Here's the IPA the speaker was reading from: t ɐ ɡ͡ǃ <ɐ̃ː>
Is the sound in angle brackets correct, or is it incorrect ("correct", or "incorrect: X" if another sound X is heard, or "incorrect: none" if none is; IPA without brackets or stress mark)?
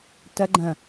incorrect: ɐ̃